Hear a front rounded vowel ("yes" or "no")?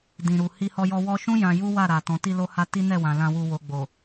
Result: no